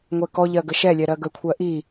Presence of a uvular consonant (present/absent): absent